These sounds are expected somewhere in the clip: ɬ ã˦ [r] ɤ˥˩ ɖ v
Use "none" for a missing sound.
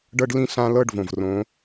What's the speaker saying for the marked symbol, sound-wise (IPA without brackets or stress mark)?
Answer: l